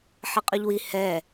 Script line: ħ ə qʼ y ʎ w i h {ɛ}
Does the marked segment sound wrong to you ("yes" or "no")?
no